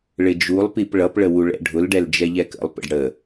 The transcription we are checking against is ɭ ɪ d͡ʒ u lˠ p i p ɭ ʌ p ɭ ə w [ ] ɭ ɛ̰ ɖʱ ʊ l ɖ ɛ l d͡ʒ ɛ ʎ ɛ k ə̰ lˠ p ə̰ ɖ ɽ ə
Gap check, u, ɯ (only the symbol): u